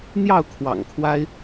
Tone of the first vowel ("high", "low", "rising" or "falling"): falling